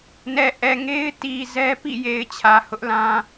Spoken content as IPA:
n ɛ˨ ʔ ɛ˨ ŋ e˦ ɪ̯ t i˨ z ɛ˦ p ḭ˦˨ j e˨ ɪ̯ t͡ɕʰ ä˨ h ʊ˦ ʔ l ã˦

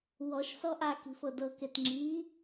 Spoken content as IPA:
w ɔ ʃ s ɔ ʔ a k i̤ f ɤ d ɤ k e t ŋ͡ǁ i

